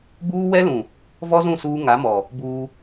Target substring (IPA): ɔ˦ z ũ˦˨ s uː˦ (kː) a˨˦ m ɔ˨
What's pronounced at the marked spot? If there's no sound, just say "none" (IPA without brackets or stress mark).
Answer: ŋ